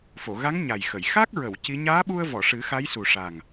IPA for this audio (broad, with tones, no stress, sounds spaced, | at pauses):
f o˨˩˨ ɣ a˧˥ ŋ ɲ a˨˩ j x ə˨˩˨ j x a˦˥ k̚ ɹ ə˨˩˨ w c i˧˥ ɲ aː˧˥ ɓ u˧ ə̯ v ɔ˨˩˨ ʂ ɨ˨˩˦ x a˧˥ j s u˨˩ ʂ a˨˩ ŋ